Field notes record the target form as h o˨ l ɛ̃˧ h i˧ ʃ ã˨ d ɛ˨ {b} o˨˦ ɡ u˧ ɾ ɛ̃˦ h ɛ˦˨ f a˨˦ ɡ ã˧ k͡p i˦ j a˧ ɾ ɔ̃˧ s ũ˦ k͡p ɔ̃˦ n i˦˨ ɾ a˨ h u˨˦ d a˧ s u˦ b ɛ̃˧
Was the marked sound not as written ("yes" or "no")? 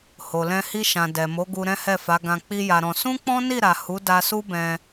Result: yes